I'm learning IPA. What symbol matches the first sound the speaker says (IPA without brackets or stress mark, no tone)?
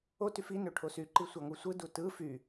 o